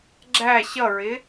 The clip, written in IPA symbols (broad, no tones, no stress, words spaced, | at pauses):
ɡ͡ǁæ ɕʌɹɪ